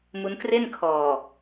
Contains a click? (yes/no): no